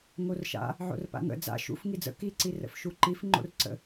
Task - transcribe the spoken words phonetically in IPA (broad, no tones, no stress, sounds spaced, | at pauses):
ŋ o r ʃ a̰ | ʕ o̰ r p a̰ ŋ ə̰ d͡z a̰ ʃ ṵ f ŋ i d͡z ə̰ k i ǀ i r ə̰ f ʃ u ǃ i f ŋ͡ǃ o̰ r ǀ ə̰